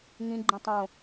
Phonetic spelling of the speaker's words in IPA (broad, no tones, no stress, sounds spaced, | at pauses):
ŋ ĩ ɡ͡ǃ ĩ tˤ õ